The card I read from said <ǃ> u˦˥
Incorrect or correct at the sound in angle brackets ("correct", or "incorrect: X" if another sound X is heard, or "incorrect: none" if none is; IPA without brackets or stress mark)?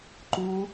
correct